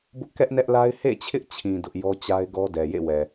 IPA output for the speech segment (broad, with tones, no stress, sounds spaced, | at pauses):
b ʊ˦ ʔ k ɛ˦ ʔ n ɛ˦ ʔ l a˦ ɪ̯ h ḛ˦˨ t͡ɕʰ ɪ˦ ʔ t͡ɕʰ ĩ˨ d ʊ˦ ʔ j ɔ˦ t͡ɕ a˦ ɪ̯ ɡ ɔ˦ d ɛ˨ j ḛ˦˨ w ɛ˨